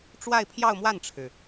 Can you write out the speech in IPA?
ʈ͡ʂ w a˥˧ ɪ̯ pʰ j ɑ˥˧ ʊ̯ m w a˥˩ n ʈ͡ʂʰ ɻ̩˩

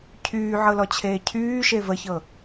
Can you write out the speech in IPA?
cʰ yː ʕ ɤ l ɔ t͡ɕʰ eː cʰ yː ʃ e v ə ç ɤ

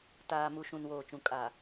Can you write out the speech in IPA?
t aː˨ m u˨ ʃ ũ˨ n w oː˨ t͡ʃ ũ˨ kʼ a˨

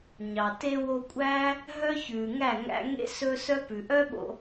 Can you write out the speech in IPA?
ɲ ɑ˨ t e˧ w o˧ kʷʼ æː˦ | ɦ œ˦ ç ʉː˨ ŋ æ˦˨ ŋ æ̰˧ ŋ ḛ˦ s ɵ˦ s œ˦ p ʉ˨ ʔ œ˦ ɓ o̰˧

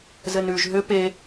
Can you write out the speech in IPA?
z ɘ n ʉ ʒ ɦ ʏ p e

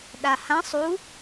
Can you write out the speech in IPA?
ɗ a h ã sˤ u

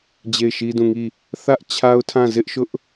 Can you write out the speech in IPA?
d͡ʑ e˦˨ ɪ̯ ʃ i˦ d ũ˦˨ ŋ i˦˨ | θ ä˦ ʔ t͡ɕʰ a˦ ʊ̯ tʰ ã˦˨ z ɪ˦ ʔ ʃ ʊ˦ ʔ

